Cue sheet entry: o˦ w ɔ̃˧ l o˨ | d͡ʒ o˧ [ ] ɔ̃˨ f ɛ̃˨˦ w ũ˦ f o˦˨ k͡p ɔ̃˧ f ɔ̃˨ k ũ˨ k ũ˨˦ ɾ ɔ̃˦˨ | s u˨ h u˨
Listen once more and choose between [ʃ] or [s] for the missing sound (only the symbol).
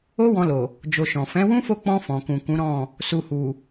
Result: ʃ